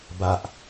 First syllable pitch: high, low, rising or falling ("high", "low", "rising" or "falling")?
low